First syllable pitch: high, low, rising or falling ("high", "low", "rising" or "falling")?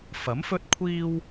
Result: rising